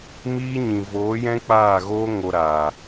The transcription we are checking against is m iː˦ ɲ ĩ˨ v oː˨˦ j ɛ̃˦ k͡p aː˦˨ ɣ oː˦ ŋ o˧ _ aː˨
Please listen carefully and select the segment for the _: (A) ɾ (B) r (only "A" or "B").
A